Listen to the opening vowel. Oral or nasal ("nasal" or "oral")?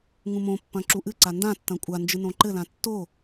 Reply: nasal